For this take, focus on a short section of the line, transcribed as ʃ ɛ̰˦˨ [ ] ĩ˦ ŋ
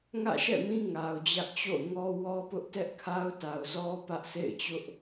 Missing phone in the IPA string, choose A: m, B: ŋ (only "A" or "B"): A